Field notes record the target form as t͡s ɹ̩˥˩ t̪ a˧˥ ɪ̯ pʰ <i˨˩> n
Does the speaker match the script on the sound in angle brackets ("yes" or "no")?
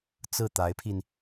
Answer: no